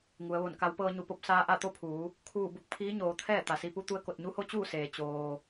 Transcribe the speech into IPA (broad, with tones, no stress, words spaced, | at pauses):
ŋu˩˧ə̯ʋo˧˩nka˧˥w pɤː˧ɲu˧˩po˧p̚ saː˧ʔa˥˨t̪o˥˨pʰuː˩˧ | kʰuː˧˩bu˧˩k̚ pʰiː˧˥ɲoː˩˧ t̪ʰɛː˥˨t̪a˩si˧pu˧˥ t̪u˧ə̯ko˧˩t̚ɲu˧˥ho˧˥ t͡ɕuː˥˨seː˩ t͡ɕoː˩